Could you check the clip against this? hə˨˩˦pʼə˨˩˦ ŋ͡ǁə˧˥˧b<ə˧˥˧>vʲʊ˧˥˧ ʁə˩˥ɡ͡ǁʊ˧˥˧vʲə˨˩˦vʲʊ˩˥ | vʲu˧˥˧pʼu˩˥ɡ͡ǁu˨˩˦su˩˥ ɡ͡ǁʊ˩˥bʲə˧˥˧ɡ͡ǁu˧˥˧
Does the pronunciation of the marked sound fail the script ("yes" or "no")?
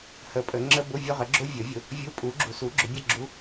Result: yes